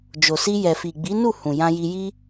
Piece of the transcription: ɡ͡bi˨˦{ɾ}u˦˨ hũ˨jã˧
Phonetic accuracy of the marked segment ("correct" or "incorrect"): incorrect